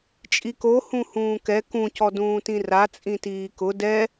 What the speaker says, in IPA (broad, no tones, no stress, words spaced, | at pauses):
t͡ʃʼiko hũhũːkɛ kũ cɔdũːtĩra t͡sʼĩtiːkʊ dɛ